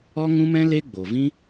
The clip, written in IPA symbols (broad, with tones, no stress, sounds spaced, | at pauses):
ɔ˦ ŋ ũ˦ m ɛ̃˦ l e˦ ɡ͡b o˨ v ĩ˦